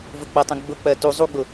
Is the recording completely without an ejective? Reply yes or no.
yes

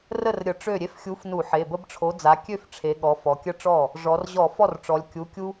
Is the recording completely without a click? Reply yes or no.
yes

